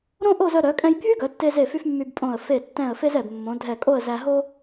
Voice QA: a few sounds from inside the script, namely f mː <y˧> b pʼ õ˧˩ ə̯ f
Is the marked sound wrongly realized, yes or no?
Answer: no